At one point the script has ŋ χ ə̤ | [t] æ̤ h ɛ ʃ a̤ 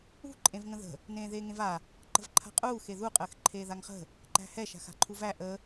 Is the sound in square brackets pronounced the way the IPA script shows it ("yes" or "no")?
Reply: no